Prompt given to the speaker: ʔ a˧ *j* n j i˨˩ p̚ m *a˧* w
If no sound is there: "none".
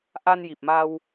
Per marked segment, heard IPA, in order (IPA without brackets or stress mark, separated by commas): none, a˧